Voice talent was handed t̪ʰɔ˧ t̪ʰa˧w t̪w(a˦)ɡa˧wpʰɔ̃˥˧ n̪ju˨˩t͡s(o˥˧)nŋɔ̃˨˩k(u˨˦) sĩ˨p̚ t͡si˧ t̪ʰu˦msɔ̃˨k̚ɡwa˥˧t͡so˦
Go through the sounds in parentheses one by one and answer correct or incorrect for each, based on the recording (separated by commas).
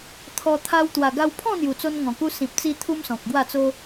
incorrect, incorrect, incorrect